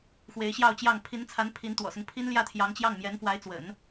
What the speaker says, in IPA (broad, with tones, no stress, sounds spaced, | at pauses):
x w e˧˥ ɪ̯ ɕ j ɑ˥˧ ʊ̯ t͡ɕ j ɑ˥˩ ŋ pʰ i˧˥ n t͡sʰ a˧˥ n pʰ i˧˥ n t̪ w ɔ̰˨˩ s ʊ˦ ŋ pʰ i˥ n l j ä˥˩ t̪ʰ j ɑ˧˥ ŋ t͡ɕ j ɑ˥˩ ŋ m j ɛ˧˥ n f w a˧˥ ɪ̯ t͡s w ə̰˨˩˦ n